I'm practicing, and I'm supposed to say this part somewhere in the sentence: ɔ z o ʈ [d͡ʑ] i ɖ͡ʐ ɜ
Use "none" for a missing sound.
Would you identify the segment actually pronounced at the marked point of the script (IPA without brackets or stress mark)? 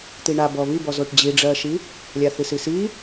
d͡ʑ